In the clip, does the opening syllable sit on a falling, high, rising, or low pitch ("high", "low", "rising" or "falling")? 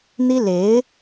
high